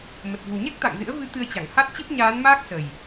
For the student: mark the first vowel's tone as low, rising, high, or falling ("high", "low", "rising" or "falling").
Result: low